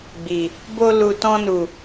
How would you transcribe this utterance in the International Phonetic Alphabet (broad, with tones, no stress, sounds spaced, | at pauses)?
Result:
ɡ͡b i˨ | b o˧ l u˨ t ɔ̃˧ n u˨